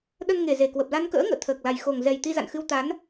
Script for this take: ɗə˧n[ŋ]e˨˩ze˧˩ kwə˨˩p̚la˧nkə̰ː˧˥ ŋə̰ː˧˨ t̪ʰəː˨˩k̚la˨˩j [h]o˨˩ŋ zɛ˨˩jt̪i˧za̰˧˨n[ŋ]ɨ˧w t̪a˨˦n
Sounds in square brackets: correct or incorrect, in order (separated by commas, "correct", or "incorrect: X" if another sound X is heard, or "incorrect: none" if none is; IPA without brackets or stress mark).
correct, incorrect: x, incorrect: x